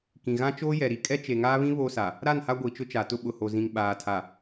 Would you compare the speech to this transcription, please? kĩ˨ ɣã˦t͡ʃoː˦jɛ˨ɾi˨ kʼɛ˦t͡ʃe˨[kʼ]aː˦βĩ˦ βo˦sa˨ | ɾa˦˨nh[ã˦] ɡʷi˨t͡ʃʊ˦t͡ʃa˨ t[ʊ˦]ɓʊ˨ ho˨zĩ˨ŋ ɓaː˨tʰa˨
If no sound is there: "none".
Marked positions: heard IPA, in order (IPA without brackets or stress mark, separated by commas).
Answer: ŋ, a˦, ʊ˦